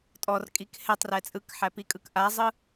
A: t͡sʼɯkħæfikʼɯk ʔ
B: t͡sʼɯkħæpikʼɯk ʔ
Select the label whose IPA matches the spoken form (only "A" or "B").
B